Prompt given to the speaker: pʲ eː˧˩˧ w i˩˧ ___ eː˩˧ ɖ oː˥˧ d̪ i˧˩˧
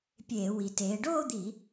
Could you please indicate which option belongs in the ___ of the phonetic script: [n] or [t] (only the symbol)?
t